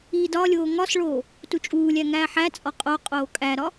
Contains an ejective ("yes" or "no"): yes